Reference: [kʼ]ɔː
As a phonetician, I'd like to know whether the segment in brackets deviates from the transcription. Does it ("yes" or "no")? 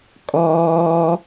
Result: no